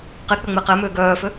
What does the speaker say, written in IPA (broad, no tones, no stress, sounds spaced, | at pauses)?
q e k͡p ʏ ŋ͡m e q ɛ m ʏː ɡ œː f ʏ